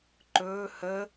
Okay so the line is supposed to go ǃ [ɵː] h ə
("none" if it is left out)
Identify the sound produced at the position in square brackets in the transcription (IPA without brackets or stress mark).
ɵː